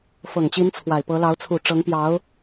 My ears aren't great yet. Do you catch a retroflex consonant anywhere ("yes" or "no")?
yes